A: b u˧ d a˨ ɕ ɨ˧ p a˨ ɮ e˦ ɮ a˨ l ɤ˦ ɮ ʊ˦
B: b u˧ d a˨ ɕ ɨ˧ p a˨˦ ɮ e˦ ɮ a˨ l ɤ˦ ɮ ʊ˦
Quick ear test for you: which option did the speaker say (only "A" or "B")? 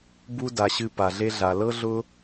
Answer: A